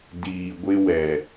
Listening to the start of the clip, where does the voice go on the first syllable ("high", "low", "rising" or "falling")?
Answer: low